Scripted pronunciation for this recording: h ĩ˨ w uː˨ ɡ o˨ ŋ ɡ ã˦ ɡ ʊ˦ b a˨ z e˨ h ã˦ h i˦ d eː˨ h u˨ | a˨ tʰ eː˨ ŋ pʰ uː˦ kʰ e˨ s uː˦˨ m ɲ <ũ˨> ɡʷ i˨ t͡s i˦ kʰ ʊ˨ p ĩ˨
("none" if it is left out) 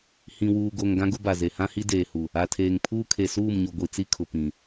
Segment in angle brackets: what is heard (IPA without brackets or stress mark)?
u˨